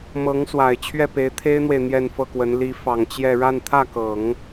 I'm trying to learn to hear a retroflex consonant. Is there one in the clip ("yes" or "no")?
yes